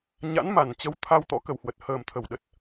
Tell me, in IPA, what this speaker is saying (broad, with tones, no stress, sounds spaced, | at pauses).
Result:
ɲ a̰˧˥ n m a˧˩ n t͡ɕ ə˨˦ w t̪ʰ a˧ w t̪ ɔ̰˧˥ k ə˨˩ w h w ə˨˩ t̚ h əː˨˩ m t̪ʰ ə˧˩ w ɗ ə˨˩ t̚